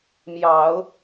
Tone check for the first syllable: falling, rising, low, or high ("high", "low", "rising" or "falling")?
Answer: low